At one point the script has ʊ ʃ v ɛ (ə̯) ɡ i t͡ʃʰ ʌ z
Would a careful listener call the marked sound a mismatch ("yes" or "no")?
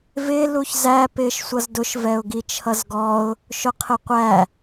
yes